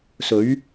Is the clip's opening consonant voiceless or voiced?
voiceless